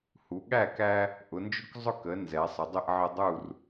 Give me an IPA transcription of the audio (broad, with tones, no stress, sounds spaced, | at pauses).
h u˩˧ ɠ æ˥˨ k æ˦ | ʔ ʊ˩˧ n d͡ʒ ʊ˦ k zˤ ʊ˦ k ə˩˧ n z ɛ˩˧ sˤ ə˩˧ dˤ ɪ˥˨ ʔ ʕ ə˦ dˤ u˥˨ r